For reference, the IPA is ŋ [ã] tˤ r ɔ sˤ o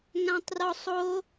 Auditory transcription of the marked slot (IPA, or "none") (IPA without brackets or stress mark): ã